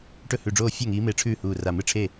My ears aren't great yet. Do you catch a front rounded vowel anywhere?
no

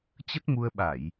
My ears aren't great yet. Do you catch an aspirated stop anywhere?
no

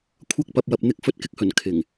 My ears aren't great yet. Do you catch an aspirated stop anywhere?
yes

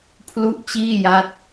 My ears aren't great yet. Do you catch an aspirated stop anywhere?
yes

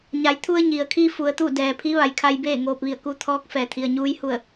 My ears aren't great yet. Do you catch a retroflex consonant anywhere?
no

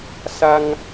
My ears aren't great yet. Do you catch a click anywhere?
no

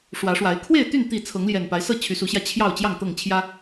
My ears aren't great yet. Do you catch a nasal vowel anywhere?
no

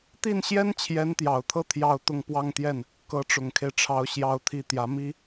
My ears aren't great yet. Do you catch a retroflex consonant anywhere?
yes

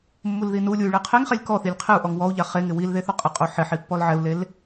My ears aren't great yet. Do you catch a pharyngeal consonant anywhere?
yes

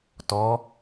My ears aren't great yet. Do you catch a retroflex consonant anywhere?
no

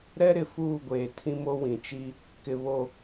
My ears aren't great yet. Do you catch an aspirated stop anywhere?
yes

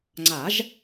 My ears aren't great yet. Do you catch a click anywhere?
yes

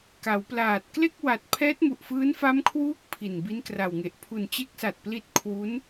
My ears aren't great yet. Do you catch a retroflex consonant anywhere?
no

